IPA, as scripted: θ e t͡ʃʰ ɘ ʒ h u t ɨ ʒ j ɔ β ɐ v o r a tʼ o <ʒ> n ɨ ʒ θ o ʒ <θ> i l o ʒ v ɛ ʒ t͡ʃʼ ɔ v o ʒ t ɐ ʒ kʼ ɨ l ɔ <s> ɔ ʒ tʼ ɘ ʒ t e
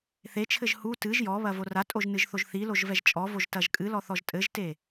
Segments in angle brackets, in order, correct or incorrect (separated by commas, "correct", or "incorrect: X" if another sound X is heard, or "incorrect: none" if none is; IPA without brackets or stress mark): correct, correct, incorrect: θ